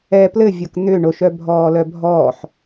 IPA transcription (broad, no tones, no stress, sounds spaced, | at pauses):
ɛ p l ɘ vʲ o k n̪ ʏ ɳ o ʃ œ bʱ ɔː l œ bʱ ɔː ħ